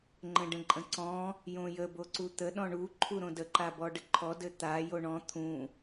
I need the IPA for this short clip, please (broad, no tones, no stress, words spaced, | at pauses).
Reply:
ŋ͡ǃə̃ɖə̃ǃʼə̃ǀɔ̃ | jõjə boǀut̪ə ɗɔ̃ɳu ǃʰuɾõdə ǃabɔɖəǃʰɔ dɘt̪a joɳɔ̃ t̪ʰũ